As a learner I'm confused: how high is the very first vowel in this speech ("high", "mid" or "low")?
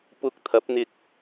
high